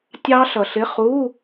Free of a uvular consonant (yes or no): no